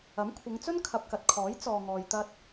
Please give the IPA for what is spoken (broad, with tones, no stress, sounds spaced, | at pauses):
ɐ˨˥ m kʷʰ ɪ˨˧ ŋ t͡s ɵ˥ n kʰ ɐ˨ p̚ k ɐ˨ t̚ kʰ ɔː˨˥ j t͡s ɔː˨ ŋ ɔː˨ j t̪ ɐ˧ t̚